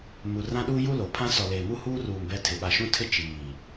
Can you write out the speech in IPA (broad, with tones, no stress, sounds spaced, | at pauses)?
m u˨ r ã˦ ɗ u˦ j u˦ l o˨ pʰ ã˦ s ɔ˨ l eː˨ m u˦ h uː˦ r uː˨ m b ɛ˦ tʰ ɪ˨ ɓ a˨ ʃ ũ˦ tʰ ɪ˦ t͡ʃ iː˨